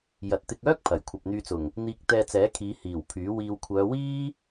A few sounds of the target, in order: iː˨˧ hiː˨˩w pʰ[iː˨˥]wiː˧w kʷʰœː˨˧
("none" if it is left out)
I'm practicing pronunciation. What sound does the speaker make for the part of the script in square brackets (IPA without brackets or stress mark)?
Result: yː˨˥